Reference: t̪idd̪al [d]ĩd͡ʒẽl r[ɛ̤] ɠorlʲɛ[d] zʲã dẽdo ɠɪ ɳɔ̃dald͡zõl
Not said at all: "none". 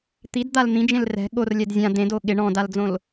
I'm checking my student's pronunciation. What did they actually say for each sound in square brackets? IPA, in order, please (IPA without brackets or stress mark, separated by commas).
n̪, ɛ̤, d